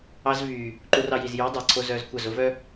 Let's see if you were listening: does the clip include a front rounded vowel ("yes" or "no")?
yes